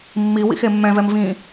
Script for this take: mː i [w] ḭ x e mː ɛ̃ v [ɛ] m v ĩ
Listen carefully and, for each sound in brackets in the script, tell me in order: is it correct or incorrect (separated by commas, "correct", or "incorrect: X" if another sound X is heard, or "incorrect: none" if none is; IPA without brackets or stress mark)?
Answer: correct, correct